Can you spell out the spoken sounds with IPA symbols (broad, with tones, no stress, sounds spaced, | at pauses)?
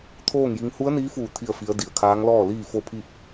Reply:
t̪ʰ oː˥˨ ŋ j i˧˥ ŋ h u˧˥ ə̯ n iː˧˥ f uː˧˩ t̪ʰ i˥˨ ə̯ f i˧˥ ə̯ d i˩ ə̯ kʰ aː˧˥ ŋ l ɔː˥˨ l iː˥˨ f o˥˨ pʰ i˥˨ p̚